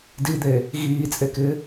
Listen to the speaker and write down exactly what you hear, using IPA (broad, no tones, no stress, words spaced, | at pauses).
did̪eː | ɣiːt͡sʼekɪː